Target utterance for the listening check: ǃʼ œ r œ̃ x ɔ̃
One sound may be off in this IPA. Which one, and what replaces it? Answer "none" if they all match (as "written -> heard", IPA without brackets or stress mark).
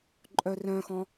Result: none